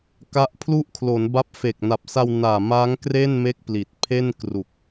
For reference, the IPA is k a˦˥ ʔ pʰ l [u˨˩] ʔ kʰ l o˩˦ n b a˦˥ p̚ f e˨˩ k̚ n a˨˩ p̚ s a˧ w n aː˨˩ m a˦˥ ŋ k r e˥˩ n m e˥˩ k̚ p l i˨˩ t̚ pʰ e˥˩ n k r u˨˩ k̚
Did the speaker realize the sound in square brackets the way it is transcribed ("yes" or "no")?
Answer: no